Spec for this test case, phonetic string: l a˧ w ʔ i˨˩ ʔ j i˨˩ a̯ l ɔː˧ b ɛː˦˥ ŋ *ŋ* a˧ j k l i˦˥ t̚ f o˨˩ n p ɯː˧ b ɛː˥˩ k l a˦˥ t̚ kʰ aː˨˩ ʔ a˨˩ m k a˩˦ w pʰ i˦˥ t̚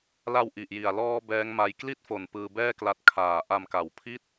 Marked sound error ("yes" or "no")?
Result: yes